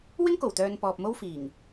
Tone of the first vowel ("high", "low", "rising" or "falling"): high